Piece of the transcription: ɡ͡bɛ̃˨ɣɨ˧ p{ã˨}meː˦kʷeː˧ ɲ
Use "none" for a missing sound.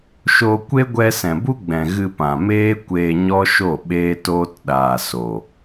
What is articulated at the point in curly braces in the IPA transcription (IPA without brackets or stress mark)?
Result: ã˨